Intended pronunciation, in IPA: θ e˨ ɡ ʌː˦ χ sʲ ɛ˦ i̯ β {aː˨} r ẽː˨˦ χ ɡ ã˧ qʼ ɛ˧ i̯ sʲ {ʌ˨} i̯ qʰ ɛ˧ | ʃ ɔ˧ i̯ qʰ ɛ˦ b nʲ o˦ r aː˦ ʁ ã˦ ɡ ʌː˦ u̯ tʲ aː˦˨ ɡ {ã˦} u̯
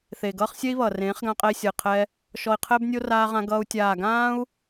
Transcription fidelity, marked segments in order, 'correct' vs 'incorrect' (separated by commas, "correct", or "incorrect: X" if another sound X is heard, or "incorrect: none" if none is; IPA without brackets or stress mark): incorrect: ʌː˨, correct, incorrect: ãː˦